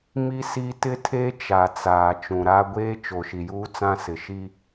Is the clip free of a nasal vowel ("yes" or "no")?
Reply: no